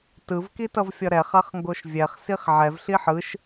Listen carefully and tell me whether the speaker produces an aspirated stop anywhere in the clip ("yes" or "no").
no